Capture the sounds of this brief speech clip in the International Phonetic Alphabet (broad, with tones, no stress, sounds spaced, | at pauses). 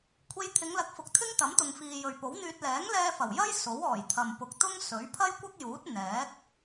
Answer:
kʷʰ e˧ j t̪ʰ ɪ˨˧ ŋ l ɐ˨˥ k̚ f ʊ˨ k̚ t̪ʰ ɪ˥ ŋ t̪ ɐ˨˥ m t̪ ʊ˨ ŋ f iː˨ j ɵ˨ ɥ p o˨˥ w n̪ yː˧ t̚ l ɛː˨˥ ŋ l ɛː˧ f ɐ˨˩ w j ɐ˥ j s o˨˥ w ɔː˨˩ j t̪ʰ ɐ˨ m p ʊ˨ k̚ t̪ ʊ˥ ŋ s ɵ˨˥ ɥ pʰ ɐ˥ j kʷ ɐ˥ k̚ j uː˨˥ t̚ n̪ ɛː˨˥ k̚